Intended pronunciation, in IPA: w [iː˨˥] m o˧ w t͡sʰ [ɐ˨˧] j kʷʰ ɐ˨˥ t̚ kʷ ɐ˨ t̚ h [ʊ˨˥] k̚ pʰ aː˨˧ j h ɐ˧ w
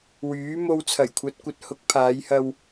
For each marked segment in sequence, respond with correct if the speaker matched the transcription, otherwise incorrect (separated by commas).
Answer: incorrect, incorrect, correct